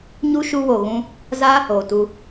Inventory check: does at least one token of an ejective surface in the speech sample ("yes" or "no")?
no